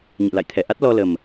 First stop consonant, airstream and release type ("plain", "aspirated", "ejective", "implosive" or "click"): aspirated